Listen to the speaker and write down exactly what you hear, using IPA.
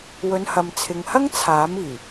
wɵ˨˧nhɐ˨mt͡sʰɪ˨ŋhɐ˥ŋ t͡sʰaː˨˥miː˨˩

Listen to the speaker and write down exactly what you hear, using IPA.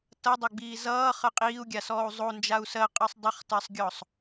tʌdˤoɡ͡biː zʌːχə qʼiːu̯ɡʲasɔːu̯ zˤond͡ʒau̯ sɜqʼɜsˤ dˤʌχtɜsˤɡʲɔsˤ

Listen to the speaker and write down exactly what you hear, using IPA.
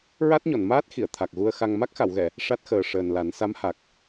ɹa˦˥t̚ɲɔ˨˩˨nmaː˦˥t̚xi˨˩˨ə̯ t̪ʰa˨˩k̚ɣu˧ə̯xa˧ŋ ma˦˥k̚xa˨˩˨wɣɛ˨˩˨ | ʂa˦˥t̚xəː˨˩ʂəː˨˩nla˨˩˦n sa˧˥mha˨˩k̚

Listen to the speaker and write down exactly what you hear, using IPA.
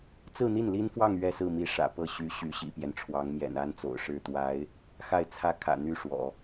t͡sɹ̩˥˧n̪i˥˩n li˥nfwɑ˥˧ŋ ɥɛ˥˧sɹ̩˥˩mi˧˥ ʂä̰˨˩pɤ˥˩ɕy˧˥ ɕy˧˥ɕḭ˨˩pjɛ˦nʈ͡ʂʰwɑ˧˥ŋ mjɛ̰˨˩n a˥nt͡so̰˨˩ʊ̯ʂɻ̩˥˩ t̪wa˧˥ɪ̯ | xa˥˩ɪ̯t͡sʰä˥ kʰä̰˨˩n̪y˥˩ ʂwɔ̰˨˩˦

